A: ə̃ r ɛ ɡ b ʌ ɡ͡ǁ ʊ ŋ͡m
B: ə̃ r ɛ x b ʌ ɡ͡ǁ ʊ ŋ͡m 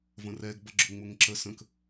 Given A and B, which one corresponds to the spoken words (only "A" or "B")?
A